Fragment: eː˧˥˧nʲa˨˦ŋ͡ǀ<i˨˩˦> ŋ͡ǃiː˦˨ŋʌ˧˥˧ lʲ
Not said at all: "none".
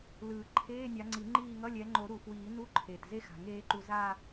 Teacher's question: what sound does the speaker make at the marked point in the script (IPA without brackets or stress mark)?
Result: i˨˩˦